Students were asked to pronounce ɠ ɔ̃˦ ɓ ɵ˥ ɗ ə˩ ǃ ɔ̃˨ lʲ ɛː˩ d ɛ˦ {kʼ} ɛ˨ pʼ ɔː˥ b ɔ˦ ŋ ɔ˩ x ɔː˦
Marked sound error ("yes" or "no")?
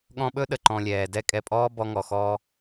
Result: no